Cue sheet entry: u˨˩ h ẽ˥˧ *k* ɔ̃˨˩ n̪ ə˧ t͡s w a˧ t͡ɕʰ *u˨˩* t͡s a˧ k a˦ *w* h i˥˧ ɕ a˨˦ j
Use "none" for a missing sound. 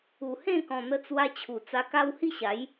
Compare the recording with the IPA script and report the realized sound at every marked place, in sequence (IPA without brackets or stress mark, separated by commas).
k, u˨˩, w